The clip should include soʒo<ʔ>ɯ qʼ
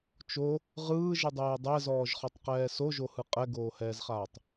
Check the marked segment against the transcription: incorrect: h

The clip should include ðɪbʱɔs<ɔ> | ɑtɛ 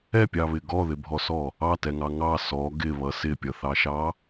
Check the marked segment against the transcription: correct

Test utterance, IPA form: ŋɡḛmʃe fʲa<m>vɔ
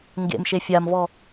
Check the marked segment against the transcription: correct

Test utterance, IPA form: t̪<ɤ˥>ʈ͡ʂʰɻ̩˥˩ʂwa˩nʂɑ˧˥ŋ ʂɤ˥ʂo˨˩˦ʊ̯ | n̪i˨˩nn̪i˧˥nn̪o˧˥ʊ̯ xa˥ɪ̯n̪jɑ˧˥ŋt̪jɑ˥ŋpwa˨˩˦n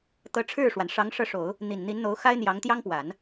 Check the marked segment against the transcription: incorrect: ɤ˧˥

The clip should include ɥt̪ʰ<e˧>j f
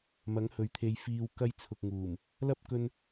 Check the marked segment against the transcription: correct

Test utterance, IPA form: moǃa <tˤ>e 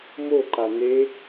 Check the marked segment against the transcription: incorrect: n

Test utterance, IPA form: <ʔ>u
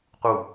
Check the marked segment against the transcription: incorrect: q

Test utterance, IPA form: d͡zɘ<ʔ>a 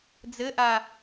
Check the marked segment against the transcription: correct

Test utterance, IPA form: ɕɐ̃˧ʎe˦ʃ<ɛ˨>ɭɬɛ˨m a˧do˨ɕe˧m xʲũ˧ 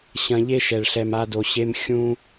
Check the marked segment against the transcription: correct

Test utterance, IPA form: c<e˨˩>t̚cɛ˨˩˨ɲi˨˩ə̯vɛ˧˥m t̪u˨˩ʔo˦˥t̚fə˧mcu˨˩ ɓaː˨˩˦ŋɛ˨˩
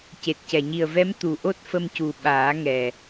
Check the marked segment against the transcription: correct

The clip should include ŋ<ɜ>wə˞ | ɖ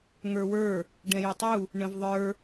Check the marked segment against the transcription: incorrect: ə˞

